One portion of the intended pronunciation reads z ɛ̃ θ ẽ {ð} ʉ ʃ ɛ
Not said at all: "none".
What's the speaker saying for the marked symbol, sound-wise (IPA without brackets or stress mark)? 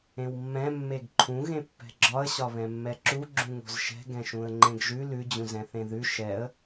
ð